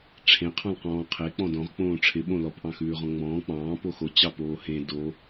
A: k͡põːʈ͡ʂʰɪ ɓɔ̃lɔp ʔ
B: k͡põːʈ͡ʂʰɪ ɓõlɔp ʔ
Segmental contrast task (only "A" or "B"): B